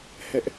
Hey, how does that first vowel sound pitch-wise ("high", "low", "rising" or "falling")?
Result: high